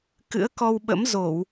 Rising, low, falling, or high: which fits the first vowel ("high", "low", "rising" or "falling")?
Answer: rising